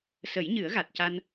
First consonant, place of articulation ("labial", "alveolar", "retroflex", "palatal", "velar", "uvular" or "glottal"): alveolar